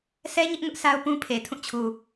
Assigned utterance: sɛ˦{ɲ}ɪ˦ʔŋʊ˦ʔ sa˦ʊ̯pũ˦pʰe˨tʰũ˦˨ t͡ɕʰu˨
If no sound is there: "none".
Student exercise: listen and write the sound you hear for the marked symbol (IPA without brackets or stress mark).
ɲ